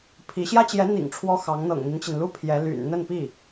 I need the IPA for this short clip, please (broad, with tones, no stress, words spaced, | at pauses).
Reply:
pʰi˧˥ ɕjä˥t͡ɕjɛ˧˥n̪ḭ˨˩ŋ ʈ͡ʂʰwɔ˥xɑ˧˥ŋ n̪ɤ̰˨˩ŋn̪i˦nt͡ɕi˩nlu˥ pʰjɛ˧˥ly̰˨˩n n̪ə˥˧npi˥˩